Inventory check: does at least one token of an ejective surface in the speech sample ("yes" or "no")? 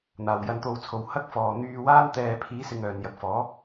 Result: no